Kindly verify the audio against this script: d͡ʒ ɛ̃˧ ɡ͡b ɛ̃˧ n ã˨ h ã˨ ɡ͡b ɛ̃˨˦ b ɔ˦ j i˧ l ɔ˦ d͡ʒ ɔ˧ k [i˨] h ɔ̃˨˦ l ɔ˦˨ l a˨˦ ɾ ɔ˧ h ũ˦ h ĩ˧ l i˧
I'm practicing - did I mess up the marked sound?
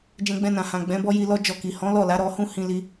no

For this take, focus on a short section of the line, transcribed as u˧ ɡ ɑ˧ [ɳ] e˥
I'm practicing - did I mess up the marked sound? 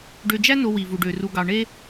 no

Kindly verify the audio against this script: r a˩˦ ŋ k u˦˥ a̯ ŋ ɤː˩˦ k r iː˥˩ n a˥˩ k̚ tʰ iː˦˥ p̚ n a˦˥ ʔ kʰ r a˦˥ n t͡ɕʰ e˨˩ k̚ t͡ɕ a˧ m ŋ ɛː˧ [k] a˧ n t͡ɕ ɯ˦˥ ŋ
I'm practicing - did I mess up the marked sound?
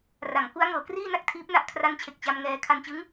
yes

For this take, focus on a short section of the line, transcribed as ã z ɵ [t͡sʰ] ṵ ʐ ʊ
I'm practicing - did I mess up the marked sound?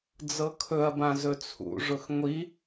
no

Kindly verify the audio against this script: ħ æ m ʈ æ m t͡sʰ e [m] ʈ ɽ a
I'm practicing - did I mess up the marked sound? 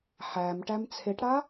yes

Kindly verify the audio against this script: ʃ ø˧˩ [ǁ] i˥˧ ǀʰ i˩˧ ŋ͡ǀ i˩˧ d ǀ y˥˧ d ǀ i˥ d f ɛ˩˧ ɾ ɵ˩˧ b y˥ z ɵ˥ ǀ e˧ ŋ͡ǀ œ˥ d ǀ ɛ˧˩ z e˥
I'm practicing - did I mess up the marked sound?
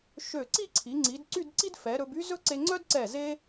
yes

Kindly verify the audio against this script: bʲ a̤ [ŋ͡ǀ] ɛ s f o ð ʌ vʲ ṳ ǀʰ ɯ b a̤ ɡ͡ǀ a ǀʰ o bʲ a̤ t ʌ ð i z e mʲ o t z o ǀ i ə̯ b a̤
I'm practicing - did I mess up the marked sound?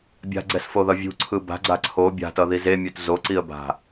yes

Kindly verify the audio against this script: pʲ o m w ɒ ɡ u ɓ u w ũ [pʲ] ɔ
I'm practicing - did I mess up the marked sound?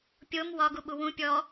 no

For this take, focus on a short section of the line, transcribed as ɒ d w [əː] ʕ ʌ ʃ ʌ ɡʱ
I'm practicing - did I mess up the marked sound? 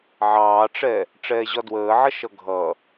no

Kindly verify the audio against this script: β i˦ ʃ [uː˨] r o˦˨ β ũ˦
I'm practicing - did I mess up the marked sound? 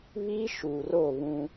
no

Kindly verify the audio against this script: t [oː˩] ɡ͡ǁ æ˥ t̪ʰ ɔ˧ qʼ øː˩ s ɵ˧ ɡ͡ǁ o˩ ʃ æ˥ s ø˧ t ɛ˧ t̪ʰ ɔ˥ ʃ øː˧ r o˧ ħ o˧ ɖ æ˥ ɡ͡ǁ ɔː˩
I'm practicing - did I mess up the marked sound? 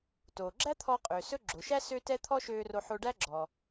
no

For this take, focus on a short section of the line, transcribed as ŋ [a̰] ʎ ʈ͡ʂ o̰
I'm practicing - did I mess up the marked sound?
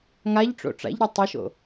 yes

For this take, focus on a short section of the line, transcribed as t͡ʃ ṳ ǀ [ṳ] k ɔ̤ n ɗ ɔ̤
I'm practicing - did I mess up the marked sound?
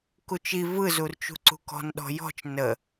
no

